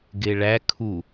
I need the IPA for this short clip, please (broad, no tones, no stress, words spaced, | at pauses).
ɡeɭæ kʰu